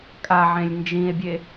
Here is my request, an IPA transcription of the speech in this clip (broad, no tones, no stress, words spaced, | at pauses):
kʼaʕẽlʲ nd͡ʒĩe̯bʲe